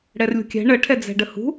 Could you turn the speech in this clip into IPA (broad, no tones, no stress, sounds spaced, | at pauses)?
ɽ ɛ r lʲ ṳ kʲ ɛ̤ ɳ ə ʈʰ ɛ d͡z ɛ̤ ɖ ə h ṳ